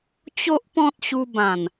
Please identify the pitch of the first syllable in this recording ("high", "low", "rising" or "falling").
high